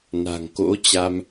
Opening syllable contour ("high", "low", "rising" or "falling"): low